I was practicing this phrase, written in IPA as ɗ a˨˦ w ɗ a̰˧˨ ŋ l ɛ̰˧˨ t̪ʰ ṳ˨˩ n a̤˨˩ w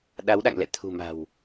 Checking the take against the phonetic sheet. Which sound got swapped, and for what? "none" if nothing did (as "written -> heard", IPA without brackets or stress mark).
n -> m